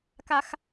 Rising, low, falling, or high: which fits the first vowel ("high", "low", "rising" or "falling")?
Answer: high